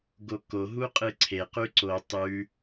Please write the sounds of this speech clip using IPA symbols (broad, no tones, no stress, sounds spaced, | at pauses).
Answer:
ɡ o k o ɦ u qʼ ɨ ǀʰ e q ʉ ǀ o tˤ ʉ